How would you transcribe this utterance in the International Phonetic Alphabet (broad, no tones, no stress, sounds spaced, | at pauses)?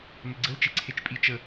n ə ɡ͡ǀ ə l t͡ʃ e ǀʰ e t͡ʃ pʼ i t͡ʃ ə